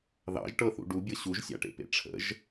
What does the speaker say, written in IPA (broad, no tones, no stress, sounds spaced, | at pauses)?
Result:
ð ɑ̰ ʒ ʈ ɤ θ ṵ ɖ u bʲ ɤ ɕ u ʒ sʲ a̰ ʈ ḛ p ḛ ʈ͡ʂʰ ə̰ ʒ